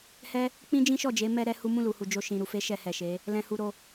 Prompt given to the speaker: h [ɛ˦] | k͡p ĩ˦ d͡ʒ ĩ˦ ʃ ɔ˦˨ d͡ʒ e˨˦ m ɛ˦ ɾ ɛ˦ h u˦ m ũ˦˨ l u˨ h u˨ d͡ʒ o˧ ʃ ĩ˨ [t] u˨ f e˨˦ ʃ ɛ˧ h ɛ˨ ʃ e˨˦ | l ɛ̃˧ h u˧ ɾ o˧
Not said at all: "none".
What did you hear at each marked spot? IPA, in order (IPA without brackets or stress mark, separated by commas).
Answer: ɛ˦, ɾ